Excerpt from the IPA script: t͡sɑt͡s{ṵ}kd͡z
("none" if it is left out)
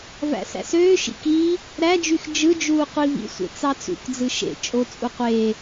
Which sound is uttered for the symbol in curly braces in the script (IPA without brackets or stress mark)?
ṵ